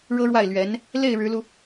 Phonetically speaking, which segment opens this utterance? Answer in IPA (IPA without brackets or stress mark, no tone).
ɻ